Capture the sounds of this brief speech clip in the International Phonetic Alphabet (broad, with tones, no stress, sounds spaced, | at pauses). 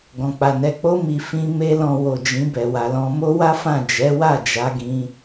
ɡ ɔ̃˨ k͡p a˨ n ɛ˨ k͡p o˧ m i˨ f ĩ˧ m e˦ l ɔ̃˧ w o˨ d͡ʒ ĩ˨˦ b ɛ˧ w a˧ l ɔ̃˦ m o˦ w a˦ f ã˦˨ d͡ʒ ɛ˨˦ w a˦˨ d͡ʒ a˧ ɡ ĩ˧